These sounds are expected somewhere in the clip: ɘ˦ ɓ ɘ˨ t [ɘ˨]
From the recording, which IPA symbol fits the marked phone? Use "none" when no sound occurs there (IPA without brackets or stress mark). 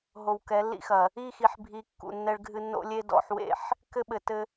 ɘ˦